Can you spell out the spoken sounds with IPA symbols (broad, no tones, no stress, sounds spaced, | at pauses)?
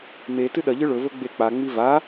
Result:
m e t ɨ ɗ ɐ ʎ ɨ ɭ ɵ v ɵ ɡ͡b e k͡p a ŋ͡m i v a